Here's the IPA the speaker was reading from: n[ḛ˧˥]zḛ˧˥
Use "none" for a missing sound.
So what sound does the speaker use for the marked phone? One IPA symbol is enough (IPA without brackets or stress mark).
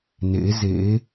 ḛ˧˥